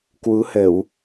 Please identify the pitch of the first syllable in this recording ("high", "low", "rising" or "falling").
rising